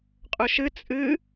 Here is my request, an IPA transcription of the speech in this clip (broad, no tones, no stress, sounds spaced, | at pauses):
qʼ ɵ ʃ ɨ t͡sʼ ɨ